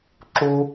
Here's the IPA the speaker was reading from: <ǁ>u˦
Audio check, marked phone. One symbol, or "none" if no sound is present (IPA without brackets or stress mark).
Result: ǁ